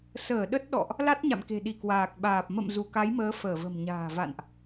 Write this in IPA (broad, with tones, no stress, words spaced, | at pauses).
səː˧˩ ɗə˦˥t̚ɗɔ̰˧˨ʔ | la˦˥t̚ɲa̰˧˨mke̤˨˩ɗi˧˩ kwaː˨˩k̚ɓaː˨˩p̚ mə̰˧˨m zu˧˩ka˨˦jməː˨˦ fəː˧˩və̤˨˩mɲa̤ː˨˩va̰˧˨nʔ